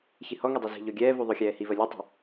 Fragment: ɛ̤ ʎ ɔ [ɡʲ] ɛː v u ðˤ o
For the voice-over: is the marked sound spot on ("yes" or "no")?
yes